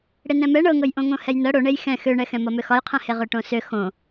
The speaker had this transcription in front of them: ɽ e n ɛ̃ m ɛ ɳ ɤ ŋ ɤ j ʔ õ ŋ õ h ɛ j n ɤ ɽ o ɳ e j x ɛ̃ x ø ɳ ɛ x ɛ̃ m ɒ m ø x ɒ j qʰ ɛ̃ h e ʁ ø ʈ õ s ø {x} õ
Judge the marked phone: correct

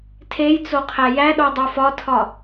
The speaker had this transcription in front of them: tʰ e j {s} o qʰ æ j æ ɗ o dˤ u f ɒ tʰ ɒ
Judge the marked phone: incorrect: t͡s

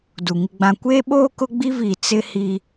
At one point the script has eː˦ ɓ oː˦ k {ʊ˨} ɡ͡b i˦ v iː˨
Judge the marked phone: incorrect: ʊ˦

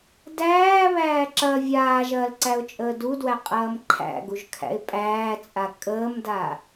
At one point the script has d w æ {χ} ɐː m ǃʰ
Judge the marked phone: incorrect: qʼ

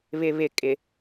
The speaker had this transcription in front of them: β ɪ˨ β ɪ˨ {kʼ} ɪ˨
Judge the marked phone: correct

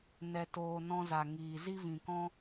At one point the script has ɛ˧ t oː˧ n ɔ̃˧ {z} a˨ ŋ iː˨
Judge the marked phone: correct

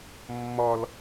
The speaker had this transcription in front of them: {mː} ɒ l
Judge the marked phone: correct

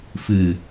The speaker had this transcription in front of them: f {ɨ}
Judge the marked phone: correct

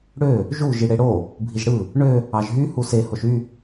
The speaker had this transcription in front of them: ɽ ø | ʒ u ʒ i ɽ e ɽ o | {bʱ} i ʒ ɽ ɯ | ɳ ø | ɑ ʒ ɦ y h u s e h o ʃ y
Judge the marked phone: correct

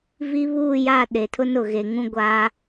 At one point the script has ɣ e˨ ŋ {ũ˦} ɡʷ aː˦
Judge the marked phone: correct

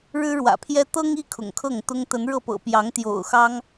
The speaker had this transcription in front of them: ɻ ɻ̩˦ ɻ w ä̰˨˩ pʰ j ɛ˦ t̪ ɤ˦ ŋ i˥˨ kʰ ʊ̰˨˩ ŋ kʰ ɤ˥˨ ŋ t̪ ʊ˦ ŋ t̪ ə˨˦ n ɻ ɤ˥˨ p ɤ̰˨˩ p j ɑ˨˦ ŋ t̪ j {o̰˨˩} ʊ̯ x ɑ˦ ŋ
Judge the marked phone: correct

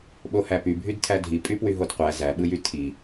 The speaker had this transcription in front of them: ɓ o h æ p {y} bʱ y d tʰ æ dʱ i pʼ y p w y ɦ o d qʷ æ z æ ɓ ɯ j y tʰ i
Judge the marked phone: correct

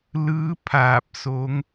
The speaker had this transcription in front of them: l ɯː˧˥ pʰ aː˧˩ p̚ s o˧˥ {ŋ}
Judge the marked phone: correct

